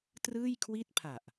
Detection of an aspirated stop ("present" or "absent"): present